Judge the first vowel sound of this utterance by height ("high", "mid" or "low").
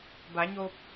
low